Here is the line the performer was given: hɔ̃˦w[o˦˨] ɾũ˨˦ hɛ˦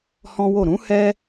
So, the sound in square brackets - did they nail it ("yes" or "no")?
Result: yes